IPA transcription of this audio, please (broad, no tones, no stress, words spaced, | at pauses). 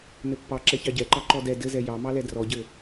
nɘpːɑ ǁɛçɑɟɛǃɑ ǃɔdɛ dɘzɛ jɑmɑlɛ drɔɟɘ